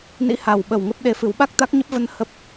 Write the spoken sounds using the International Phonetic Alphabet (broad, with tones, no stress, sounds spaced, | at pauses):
n ḭ˧˥ h a˨˩ w ɓ ə˨˩ w ŋ ə˦˥ p̚ ɗ e˧ f ɨ˨˦ w ɓ a˦˥ k̚ t̪ a˦˥ k̚ ɲ ə˦˥ p̚ v ə˧ n h ə˦˥ p̚